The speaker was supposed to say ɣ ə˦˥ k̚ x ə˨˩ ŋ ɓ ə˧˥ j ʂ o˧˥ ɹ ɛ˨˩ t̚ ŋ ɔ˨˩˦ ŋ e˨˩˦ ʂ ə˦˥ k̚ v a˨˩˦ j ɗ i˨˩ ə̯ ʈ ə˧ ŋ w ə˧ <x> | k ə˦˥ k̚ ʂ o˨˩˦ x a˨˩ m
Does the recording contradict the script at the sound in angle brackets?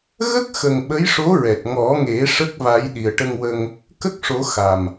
yes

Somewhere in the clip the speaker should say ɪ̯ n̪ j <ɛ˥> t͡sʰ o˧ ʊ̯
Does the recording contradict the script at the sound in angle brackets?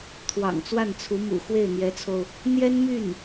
yes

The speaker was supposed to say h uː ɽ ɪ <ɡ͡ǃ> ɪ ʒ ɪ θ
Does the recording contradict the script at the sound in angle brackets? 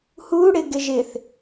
yes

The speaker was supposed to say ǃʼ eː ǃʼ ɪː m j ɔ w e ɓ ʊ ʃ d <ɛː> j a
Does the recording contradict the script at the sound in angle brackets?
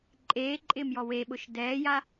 no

